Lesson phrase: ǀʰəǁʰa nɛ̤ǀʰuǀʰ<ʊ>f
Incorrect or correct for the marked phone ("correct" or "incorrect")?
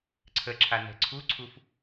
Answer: incorrect